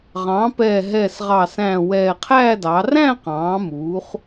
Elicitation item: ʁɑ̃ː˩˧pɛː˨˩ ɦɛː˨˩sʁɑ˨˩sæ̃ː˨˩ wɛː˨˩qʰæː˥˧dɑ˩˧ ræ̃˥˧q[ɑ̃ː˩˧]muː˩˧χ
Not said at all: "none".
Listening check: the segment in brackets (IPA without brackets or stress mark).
ɑ̃ː˩˧